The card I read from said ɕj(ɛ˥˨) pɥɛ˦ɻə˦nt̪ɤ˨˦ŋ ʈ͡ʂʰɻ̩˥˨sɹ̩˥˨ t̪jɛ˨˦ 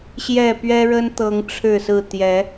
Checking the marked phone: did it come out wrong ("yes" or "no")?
no